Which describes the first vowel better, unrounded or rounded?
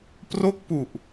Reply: rounded